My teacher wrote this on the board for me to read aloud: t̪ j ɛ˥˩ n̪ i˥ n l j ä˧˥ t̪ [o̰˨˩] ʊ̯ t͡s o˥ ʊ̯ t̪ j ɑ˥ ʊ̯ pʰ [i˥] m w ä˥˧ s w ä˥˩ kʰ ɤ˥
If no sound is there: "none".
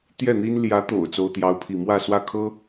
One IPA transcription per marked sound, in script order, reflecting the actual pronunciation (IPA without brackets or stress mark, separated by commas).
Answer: o̰˨˩, i˥˧